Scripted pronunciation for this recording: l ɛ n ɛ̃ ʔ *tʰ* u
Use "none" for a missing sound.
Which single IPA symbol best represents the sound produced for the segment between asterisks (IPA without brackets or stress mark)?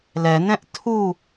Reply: tʰ